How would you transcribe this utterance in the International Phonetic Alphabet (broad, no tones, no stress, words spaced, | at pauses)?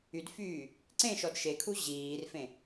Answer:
ydfyː | ǀẽʃɔd ʃekʰu ʑiːrfẽ